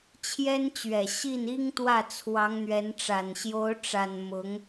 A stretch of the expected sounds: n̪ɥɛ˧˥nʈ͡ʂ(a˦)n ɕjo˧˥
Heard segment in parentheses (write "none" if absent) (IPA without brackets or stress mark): a˨˩